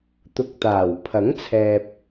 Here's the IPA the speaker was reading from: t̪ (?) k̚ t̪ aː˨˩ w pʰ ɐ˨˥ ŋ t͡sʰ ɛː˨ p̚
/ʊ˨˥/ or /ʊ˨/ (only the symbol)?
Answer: ʊ˨˥